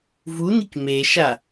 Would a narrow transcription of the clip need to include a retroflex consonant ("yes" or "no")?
no